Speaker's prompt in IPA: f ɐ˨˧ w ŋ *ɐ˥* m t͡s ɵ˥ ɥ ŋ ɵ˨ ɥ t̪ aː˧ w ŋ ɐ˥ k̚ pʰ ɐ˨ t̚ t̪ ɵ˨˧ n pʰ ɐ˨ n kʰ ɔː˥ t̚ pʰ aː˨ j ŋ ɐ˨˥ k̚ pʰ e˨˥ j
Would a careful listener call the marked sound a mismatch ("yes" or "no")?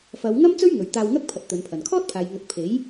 no